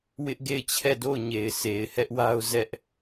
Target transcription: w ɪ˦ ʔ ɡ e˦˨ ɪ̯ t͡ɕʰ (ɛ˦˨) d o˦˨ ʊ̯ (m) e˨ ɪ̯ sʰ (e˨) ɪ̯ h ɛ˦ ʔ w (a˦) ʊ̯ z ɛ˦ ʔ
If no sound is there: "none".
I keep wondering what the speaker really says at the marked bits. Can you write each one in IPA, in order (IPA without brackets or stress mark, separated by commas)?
ɛ˦˨, ɲ, e˨, a˦